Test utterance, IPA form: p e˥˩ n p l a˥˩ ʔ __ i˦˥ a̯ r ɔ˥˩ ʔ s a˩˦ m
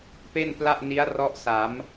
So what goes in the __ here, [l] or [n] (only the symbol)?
n